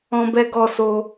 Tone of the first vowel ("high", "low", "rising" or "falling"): high